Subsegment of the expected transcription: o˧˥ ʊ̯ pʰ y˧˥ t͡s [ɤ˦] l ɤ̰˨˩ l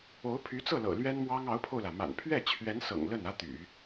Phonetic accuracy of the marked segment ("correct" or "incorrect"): incorrect